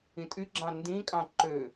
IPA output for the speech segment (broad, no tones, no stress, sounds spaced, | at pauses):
ĩ tʼ y ɡ͡ǁ ɑ̃ n d ĩ kʼ ɑ̃ ǃ ø